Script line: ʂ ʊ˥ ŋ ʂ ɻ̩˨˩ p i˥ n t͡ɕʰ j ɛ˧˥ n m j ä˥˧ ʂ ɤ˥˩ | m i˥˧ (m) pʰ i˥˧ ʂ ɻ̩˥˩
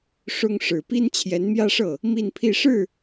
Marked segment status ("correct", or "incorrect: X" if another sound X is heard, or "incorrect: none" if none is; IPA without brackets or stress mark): incorrect: n